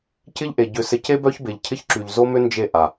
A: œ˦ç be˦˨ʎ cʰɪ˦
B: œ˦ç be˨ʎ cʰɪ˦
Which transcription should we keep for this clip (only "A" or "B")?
B